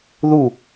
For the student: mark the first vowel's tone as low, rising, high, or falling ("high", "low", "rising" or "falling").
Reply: falling